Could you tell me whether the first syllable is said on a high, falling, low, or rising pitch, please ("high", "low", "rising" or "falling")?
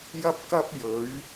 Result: high